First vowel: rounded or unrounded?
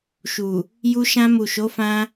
rounded